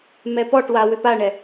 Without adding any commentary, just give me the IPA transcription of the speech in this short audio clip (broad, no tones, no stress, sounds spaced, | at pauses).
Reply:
m ɛ p ɔ ʈ w a w ʏ p a ɳ ɛ